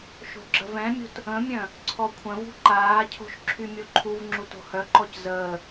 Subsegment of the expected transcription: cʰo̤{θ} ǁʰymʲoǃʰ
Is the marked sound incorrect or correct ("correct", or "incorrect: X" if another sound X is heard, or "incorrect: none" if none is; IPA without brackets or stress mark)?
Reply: incorrect: ʃ